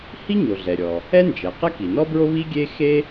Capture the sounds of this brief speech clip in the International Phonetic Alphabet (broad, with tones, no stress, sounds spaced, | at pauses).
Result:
h i˥ ɲ o˩ ɮ ɛ˩ ɾʲ ɔ˩ | ɛ˥ n d͡ʒ ɛ˩ q ɛ˥ k i˩ n ɔ˥ b ɹ o˥ β i˥ ɡʲ e˥ x e˥